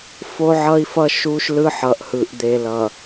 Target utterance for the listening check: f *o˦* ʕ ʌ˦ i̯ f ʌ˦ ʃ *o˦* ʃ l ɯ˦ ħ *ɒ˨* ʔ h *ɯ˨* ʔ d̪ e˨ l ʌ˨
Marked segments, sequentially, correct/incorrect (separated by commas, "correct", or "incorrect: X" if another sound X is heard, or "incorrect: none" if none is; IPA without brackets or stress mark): correct, incorrect: u˦, incorrect: ʌ˨, correct